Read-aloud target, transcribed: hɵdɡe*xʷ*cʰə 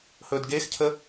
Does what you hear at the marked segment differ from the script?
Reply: yes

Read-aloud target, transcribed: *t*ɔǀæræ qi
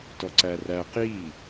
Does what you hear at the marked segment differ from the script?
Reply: no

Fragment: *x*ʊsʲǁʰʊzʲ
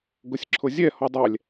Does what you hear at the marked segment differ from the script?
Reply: yes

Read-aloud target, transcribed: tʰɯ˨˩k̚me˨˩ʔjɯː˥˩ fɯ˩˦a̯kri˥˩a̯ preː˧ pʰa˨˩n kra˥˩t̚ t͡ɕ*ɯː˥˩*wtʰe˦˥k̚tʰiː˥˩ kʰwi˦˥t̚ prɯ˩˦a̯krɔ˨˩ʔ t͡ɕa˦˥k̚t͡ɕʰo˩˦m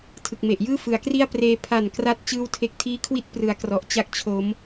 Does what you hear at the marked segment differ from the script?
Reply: no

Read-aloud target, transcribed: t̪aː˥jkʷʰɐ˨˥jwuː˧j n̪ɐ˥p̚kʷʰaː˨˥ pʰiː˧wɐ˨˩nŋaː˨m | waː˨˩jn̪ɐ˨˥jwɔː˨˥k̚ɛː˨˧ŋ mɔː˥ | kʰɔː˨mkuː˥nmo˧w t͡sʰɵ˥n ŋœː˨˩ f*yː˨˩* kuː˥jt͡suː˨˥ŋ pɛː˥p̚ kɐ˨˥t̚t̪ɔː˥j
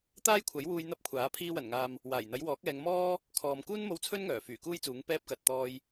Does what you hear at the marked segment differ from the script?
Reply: no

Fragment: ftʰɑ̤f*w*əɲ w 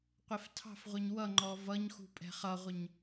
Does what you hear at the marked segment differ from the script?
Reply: yes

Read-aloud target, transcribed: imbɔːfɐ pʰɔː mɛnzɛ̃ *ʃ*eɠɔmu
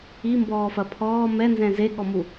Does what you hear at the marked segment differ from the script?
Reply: yes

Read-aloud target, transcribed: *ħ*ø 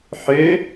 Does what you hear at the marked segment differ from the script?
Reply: no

